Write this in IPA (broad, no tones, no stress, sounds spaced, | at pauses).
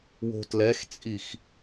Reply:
w o̤ t l ɛ x t͡sʼ i x